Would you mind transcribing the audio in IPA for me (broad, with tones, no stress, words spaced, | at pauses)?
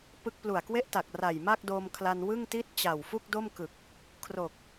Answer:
pɯ˥˩k̚ plu˨˩a̯kwe˥˩ʔta˨˩k̚ ra˨˩jma˥˩k̚do˧m kʰla˧nwɯ˥˩ŋti˥˩t̚ t͡ɕa˨˩w fu˥˩k̚do˥˩m kɯ˨˩k̚ | kʰro˨˩k̚